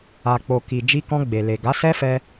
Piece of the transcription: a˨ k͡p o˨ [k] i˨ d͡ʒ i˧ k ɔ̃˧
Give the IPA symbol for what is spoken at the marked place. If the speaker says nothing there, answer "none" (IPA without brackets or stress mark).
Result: k